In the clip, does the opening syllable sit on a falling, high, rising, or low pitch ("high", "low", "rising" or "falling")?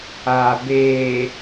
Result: low